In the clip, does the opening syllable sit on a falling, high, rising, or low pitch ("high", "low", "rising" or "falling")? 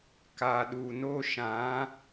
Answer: low